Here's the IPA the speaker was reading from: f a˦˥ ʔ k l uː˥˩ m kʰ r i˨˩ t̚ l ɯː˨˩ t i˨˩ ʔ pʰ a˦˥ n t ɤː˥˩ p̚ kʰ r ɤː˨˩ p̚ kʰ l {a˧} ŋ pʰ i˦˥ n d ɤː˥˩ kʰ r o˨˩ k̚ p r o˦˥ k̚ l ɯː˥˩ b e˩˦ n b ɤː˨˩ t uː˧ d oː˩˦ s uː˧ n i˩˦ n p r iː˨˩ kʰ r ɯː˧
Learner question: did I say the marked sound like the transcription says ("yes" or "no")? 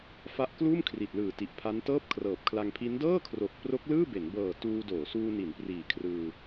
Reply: yes